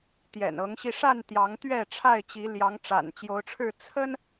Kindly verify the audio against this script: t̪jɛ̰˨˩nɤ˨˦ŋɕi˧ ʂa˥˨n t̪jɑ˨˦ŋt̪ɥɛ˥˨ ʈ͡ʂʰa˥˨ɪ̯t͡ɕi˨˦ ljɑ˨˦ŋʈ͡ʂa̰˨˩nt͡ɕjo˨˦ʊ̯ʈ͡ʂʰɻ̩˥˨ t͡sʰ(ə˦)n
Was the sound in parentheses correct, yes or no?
yes